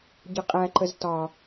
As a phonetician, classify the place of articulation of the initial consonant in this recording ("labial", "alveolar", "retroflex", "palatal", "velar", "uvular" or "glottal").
palatal